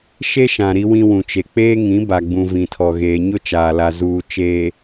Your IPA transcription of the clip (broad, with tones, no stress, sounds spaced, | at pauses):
ʃ e˦ ʃ ã˨ ɾ i˦ w ĩ˦ w ũ˨ t͡ʃ e˨ k͡p eː˦ ŋ ĩ˨˦ b a˨ ɡ͡b ũ˨ v ĩ˨ tʰ ɔ˨ ɣ eː˨ ɲ ʊ˦ t͡ʃ aː˨ l a˨ z uː˨ t͡ʃ eː˨